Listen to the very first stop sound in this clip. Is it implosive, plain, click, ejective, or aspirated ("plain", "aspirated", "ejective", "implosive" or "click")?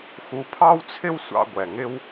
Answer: aspirated